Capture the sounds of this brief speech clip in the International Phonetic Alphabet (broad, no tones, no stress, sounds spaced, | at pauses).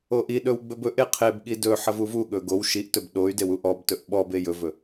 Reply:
o ʔ i ɗ ɵ w ɡ͡b ɵ b ɵ ʔ e qʰ e b ɠ i d ɵ ħ ɐ v u v u ɠ ɵ ɡ o w ʃ i ʔ t ɵ b ɗ o y̯ d e w u ʔ ɔ b t ɵ ʔ ɓ ɔ b e j ɵ v ɵ